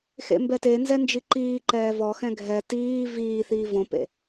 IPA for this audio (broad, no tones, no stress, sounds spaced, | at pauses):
x ḛ m b ɛ t e n z ɛ n d͡ʒ i ǃ iː ǃ ɛː v ɔ x ɛ̃ ɡʱ ɛ t iː v iː θ iː v õ p ḛ